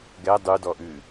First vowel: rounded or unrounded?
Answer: unrounded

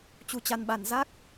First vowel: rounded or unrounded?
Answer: rounded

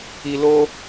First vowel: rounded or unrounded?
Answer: unrounded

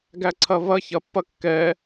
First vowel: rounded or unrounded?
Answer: unrounded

